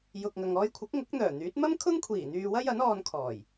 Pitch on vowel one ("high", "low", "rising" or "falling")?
low